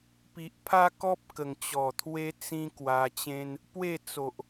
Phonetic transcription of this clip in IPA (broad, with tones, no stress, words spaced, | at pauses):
pi˨ʔpʰa˦kɔ˦p̚ kə˨˩ŋt͡ɕɔ˨˩t̪ʰwe˦ t͡sĩ˧ kwa˧t͡ɕẽ˦n | pwe˥˧t͡so˨ʔ